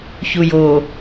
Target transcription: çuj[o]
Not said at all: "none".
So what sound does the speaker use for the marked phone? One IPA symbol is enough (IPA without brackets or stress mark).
o